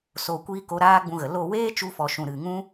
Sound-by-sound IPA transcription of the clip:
s oː˨ kʷ iː˧ k o˨˦ ɾ aː˦ ɡ͡b ũ˧ ɣ ə˨ l o˦˨ w eː˦ t͡ʃ u˧ f ɔ˨ ʃ ũ˨ ɾ ɨ˨ ŋ ũ˦

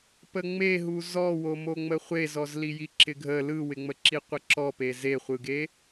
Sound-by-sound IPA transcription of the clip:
p ə ŋ͡m e ɦ u z ɔ w o m o ŋ͡m ə χʷ e z ɔ z l i j i ǁ ɪ ɡʱ ə l ɯ w ɪ ŋ͡m ə ǁ i qʷ ə ǁ ɔ p e z e χʷ ɯ ɡ e

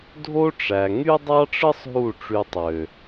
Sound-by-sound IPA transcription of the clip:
dʱ o˦ ʈ͡ʂ æ˨ ŋ y˦ dˤ ɑ˦ ʈ͡ʂ ɯ˦ sˤ ɦ u˦˨ ʈ͡ʂ y˧ tˤ ø˨

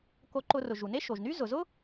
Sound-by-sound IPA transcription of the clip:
k o˧ ǃ ʊ˧ r ʊ˩ ʒ u˩ n e˥ ʃ o˩ ʒ n y˥ z ʊ˩ z ʊ˥

